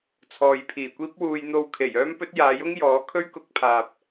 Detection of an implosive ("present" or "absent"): absent